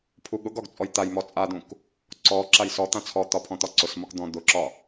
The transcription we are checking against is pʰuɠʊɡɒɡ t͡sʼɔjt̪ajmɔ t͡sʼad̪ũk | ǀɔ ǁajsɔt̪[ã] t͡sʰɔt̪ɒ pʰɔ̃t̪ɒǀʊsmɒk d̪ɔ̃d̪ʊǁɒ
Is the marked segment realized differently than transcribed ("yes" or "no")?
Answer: no